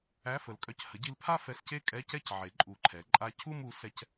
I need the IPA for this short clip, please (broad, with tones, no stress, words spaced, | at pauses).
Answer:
æ˧˥˧fə˩˥lkʼœ˧c hə˩˥ɟi˧lpʰa˥˧ fɛ˧sce˥˧kʼɛ˧˥˧cɛ˥˧c ʕe˩˥ǃʼu˨˩˦ǃʰɛ˩˥ ǃʼa˧cʰu˥˧m u˩˥sɛ˧c